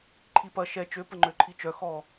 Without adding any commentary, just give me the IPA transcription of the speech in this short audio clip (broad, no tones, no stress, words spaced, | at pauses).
ǃʰipɐ ʃɛ t͡ʃø pəŋ͡ǃøǃʰit͡ʃœ xɔ